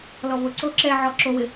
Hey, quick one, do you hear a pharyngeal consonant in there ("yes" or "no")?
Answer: yes